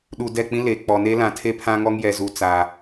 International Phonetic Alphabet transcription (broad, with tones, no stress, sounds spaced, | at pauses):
ɗ u˨ d ɛ˦˨ k͡p ĩ˦ l e˨ k͡p ɔ˨ n e˦ l ã˨ tʰ e˦ pʰ ã˦ ŋ ɔ˦ ŋ j ɛ˨ z u˨ t͡s a˨